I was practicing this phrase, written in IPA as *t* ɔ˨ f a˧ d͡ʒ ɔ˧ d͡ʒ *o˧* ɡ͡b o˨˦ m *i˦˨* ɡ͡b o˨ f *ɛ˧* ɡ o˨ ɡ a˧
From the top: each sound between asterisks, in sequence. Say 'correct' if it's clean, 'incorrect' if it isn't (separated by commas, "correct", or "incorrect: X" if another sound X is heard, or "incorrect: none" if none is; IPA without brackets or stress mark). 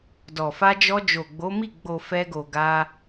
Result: incorrect: d, incorrect: o˨, correct, correct